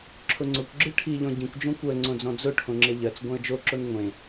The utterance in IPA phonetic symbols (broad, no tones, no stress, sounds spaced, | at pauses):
ǁʰ ʊ ŋ͡ǀ ʊ kʷ ɡ͡ǁ ɯ ʈʰ i ʎ ɔ̃ ɟ ĩ kʷ d͡ʒ õ kʷ ɜ ŋ͡ǀ õ d͡z ɔ̃ d͡z ʊ ʈʰ õ ŋ͡ǁ e ʎ ɜ t͡s ɡʷ ẽ ə̯ d͡ʒ o ǁ o n ŋʷ ẽ